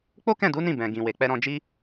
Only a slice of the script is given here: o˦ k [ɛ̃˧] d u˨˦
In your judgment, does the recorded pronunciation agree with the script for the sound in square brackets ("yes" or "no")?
no